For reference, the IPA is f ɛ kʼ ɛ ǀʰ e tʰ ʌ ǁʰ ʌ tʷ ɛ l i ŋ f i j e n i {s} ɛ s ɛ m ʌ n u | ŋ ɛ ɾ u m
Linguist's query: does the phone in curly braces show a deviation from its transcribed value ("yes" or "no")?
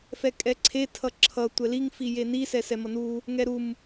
no